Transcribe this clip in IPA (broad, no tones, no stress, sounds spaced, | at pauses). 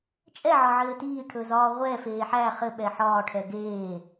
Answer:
t͡ʃʼ ɛ ʕ ɒ ʕ ɘː t iː ʈʰ ɵ z ɒː ʁʷ ɛ f eː ħ æ χ ɘ ɓ ɛ ħ ɒː ʈʰ ɛ ɡ eː